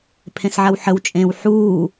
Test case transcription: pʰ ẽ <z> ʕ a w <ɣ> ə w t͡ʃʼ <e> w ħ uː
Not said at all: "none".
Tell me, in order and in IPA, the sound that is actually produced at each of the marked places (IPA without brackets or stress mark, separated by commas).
s, ħ, ẽ